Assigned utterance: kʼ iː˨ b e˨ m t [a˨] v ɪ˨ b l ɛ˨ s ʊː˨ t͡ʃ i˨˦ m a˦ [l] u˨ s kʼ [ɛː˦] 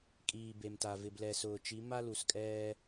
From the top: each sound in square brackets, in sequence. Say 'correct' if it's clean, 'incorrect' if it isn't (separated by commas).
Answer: correct, correct, correct